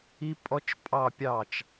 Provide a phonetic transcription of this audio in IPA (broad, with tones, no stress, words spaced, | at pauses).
i˥ pʼɔ˥t͡ʃpʼɑ˥˧pʲɑ˥˩t͡ʃ